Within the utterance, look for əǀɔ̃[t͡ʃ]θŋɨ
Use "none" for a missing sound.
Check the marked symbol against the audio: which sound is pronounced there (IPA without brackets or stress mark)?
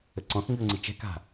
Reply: none